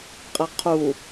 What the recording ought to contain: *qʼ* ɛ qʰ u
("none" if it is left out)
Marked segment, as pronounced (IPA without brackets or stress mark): qʼ